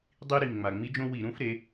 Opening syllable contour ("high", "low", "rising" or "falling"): high